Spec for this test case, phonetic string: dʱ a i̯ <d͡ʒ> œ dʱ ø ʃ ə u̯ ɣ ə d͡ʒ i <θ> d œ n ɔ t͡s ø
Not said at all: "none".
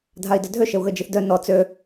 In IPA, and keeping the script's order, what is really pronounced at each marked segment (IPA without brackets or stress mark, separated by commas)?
d, θ